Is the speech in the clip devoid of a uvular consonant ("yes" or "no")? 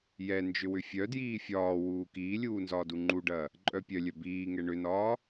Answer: yes